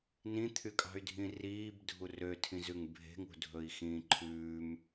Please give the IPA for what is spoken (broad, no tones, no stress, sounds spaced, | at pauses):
n ĩ t̪ʰ y kʼ ɑ̤ y̯ dʱ ĩ r iː b dʱ u r ø tʰ ĩ z ʉ ŋ bʱ e̤ ŋ ṳ dʱ ɵ i̯ x ĩː ǃʰ ʉː m